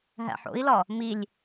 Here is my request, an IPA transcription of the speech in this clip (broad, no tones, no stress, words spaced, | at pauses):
ɦæ̰ħo̰i̯lɒ | milʲ